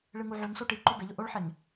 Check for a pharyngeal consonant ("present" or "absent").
present